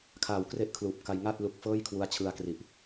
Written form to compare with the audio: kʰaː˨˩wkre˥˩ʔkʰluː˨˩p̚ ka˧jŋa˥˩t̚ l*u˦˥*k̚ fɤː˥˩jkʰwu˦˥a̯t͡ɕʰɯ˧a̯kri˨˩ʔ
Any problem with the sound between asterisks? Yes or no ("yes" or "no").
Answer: no